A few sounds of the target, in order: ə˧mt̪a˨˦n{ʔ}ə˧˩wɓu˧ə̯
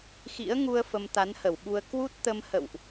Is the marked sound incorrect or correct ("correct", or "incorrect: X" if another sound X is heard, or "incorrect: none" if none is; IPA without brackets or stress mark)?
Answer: incorrect: h